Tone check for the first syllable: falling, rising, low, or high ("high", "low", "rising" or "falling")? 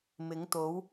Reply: rising